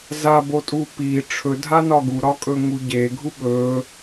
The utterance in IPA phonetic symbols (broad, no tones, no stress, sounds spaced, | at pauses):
z a b o tʼ u p i ʈ͡ʂʰ ɵ dʱ a n ɒ ɡ u ɾ ɒ kʼ ɵ ŋ u ɟ e ɡʱ u ɓ ɵ